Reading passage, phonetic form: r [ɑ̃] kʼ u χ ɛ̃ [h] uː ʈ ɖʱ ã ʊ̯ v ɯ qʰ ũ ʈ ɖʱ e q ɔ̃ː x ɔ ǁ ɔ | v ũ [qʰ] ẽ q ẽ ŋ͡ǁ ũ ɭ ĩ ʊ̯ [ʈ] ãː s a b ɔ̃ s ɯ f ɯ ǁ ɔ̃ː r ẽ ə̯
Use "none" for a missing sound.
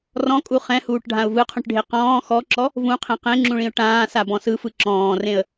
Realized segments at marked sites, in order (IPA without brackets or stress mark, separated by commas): ɔ̃, h, qʰ, ʈ